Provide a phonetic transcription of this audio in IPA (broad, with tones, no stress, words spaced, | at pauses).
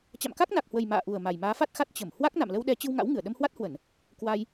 t͡ɕa̰˧˨mka˦˥k̚na˨˩k̚hwə˨˩j ma̰ː˧˨ʔu˨˩ə̯ ma˨˩jmaː˨˦fa˦˥t̚xa˦˥t̚ t͡ɕə˧˩m hwa˦˥k̚na̰˧˨mlə˧wɗɛ˨˦ t͡ɕɨ˧wŋa̰˧˥wŋɨ˧˩ə̯ ɗə˧mhwa˦˥t̚hwə˧˩˨n | kwa˧j